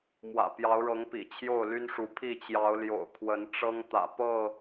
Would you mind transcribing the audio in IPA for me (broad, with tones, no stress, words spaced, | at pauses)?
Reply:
mwä̰˨˩ pjɑ˨˦ʊ̯ɻɤ˨˦ŋ pḭ˨˩t͡ɕʰjo˥˨ʊ̯ly˦nʂu˨˦ pʰi˥˨t͡ɕjɑ˨˦ʊ̯ljo̰˨˩ʊ̯ kʰwə˨˦nʈ͡ʂɤ˦ŋt̪ä̰˨˩ pɤ˥˨